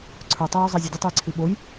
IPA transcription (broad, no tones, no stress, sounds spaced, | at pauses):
ǀʰ ə˞ tˤ o j o zˤ ɛ zʲ ɵ dʲ o tˤ ɵ j ǀʰ i ɓ o j